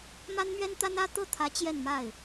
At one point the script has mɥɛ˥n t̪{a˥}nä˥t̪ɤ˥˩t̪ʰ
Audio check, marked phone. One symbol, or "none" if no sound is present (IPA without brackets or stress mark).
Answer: a˥